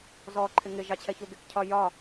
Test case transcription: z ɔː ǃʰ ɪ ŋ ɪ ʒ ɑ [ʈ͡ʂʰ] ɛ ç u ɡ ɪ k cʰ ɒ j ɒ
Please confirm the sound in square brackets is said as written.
no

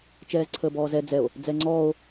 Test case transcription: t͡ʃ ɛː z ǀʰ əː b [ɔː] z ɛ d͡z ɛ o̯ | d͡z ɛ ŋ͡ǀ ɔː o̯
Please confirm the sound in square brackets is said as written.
yes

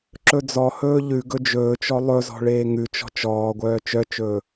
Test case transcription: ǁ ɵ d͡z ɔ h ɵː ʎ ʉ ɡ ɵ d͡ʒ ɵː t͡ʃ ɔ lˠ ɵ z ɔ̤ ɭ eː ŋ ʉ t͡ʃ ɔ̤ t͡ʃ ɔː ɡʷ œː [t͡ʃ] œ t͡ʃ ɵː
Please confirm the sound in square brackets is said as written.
yes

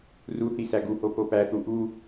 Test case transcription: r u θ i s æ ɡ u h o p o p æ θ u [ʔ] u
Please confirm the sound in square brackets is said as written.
yes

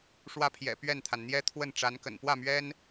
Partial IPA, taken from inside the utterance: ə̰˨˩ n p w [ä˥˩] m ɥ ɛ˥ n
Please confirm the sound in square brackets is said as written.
yes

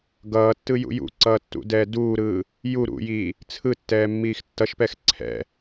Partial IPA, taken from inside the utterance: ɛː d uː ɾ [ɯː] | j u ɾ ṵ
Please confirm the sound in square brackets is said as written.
yes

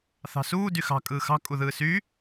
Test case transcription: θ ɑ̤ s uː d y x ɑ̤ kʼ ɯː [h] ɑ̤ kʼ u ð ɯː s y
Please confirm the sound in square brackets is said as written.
no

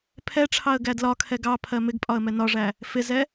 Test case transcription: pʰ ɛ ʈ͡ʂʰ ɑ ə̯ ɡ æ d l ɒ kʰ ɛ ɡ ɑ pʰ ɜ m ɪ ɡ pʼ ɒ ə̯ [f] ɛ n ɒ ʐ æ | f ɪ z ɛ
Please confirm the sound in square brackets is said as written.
no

